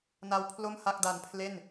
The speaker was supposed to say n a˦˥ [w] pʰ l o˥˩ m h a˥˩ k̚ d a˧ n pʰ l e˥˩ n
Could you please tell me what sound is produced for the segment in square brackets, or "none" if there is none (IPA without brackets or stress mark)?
w